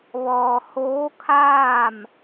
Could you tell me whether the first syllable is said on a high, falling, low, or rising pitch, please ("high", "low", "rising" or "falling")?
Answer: low